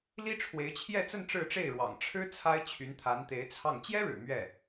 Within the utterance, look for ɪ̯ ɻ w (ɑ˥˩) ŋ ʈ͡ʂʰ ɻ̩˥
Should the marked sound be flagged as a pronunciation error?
yes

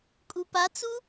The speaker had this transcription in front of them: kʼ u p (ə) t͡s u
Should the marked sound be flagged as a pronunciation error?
yes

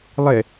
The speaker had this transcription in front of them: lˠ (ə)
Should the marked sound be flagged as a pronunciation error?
yes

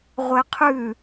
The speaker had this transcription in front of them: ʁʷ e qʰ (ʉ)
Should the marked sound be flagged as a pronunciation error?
yes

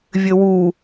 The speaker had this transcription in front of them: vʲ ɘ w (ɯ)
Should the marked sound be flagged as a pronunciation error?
yes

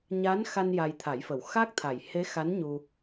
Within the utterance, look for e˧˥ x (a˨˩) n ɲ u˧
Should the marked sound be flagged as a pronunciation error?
yes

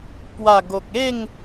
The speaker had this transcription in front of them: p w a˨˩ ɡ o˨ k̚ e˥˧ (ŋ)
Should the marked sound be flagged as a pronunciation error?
no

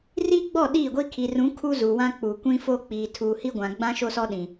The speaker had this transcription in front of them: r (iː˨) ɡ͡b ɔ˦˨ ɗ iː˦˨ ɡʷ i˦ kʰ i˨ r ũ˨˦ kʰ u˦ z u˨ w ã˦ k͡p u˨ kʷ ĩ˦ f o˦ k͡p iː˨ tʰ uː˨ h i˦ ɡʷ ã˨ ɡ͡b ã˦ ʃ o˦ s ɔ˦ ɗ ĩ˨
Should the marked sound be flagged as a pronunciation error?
yes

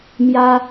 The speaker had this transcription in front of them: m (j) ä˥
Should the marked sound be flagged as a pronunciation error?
no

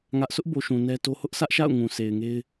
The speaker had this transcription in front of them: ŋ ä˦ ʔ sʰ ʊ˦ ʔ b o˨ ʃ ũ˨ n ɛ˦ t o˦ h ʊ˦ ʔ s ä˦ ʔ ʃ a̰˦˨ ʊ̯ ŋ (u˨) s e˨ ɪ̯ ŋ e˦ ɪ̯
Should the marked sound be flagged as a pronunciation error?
yes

